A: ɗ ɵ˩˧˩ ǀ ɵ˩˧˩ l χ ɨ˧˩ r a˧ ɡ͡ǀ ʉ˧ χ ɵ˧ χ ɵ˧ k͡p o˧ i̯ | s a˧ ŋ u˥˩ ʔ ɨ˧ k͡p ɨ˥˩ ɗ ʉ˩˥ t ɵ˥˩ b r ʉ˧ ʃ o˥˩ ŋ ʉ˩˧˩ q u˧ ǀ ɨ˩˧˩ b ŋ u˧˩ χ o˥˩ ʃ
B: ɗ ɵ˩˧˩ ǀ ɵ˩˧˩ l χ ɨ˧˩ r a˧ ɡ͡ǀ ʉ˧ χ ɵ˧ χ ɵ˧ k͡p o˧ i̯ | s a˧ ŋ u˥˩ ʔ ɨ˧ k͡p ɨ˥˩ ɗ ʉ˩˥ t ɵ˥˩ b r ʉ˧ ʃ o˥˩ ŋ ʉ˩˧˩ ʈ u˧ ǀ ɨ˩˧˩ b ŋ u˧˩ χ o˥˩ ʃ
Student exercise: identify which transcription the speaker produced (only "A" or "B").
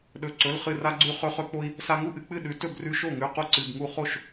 A